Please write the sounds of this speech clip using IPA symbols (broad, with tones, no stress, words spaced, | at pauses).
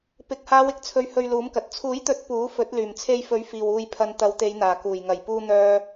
pɪ˨k̚ haː˨˧wɪ˥k̚t͡sʰɵ˨ɥ hɵ˧ɥluː˨˥mkɐ˨t̚ t͡sʰuː˨˥jt̪ɵ˨˥t̚ puː˨˥ fɵ˨˥t̚ lyː˨˩mt͡sʰe˧jfɵ˨˥ɥ fiː˨w uː˨jpʰɐ˨n t̪ɐ˨˧wt̪e˨˧jn̪aː˨˩ kuː˨˩jŋɐ˨˩j puː˧n̪œː˧